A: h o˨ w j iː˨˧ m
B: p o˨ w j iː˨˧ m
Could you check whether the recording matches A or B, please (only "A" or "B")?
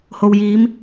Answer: A